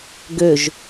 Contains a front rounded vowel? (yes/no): yes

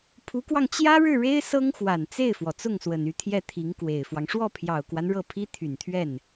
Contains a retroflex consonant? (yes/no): yes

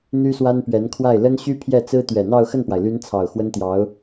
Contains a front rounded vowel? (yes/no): yes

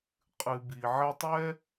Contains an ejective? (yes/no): yes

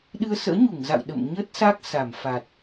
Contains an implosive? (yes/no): yes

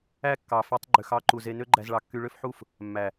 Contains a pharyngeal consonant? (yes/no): yes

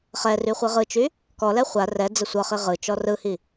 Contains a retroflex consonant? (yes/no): no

